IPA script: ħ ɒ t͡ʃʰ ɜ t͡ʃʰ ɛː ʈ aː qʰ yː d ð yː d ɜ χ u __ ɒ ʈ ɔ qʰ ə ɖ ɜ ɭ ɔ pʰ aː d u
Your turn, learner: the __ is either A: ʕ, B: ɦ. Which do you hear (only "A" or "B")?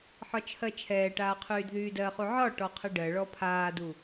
A